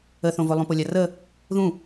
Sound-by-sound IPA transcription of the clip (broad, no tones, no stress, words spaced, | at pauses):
əθõvo lˠũpolʲarə | ðũ